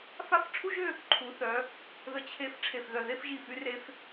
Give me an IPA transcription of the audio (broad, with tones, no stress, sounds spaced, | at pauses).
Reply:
f a˥˧ f ʈ͡ʂʰ u˥ ʒ ø˥˧ | ǃʰ u˩˧ θ œ˩˧ | ð ə˧ t͡ɕʰ e˧ f ʈ͡ʂʰ e˧˩ f ð œ˧˩ ð e˥˧ f ʒ i˧˩ f y˧ r e˧ f